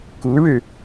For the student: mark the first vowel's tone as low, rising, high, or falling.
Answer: rising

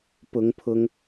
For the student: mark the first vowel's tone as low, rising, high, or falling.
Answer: rising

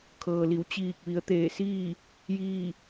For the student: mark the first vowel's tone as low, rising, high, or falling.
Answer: low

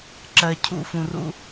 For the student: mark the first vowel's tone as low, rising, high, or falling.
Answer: low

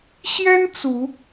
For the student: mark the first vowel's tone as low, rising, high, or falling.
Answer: high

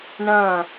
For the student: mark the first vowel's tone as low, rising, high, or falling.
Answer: falling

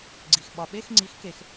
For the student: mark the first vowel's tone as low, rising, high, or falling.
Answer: low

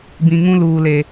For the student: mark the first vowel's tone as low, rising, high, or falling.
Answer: low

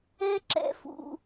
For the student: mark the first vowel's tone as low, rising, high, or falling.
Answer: high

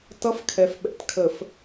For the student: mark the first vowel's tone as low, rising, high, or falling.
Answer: high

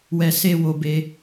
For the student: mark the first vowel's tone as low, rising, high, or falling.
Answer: low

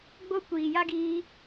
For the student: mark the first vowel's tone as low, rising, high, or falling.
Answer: high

